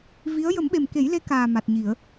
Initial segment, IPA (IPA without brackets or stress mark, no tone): v